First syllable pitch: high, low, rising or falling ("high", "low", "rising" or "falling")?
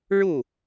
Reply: falling